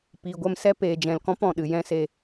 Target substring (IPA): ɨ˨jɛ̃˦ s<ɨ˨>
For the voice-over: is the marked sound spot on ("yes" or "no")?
no